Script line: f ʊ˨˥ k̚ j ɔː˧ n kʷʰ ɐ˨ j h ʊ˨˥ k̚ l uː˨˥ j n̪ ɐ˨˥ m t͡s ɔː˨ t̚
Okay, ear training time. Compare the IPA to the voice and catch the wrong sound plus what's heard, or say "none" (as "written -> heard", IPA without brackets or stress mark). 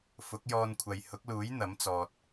none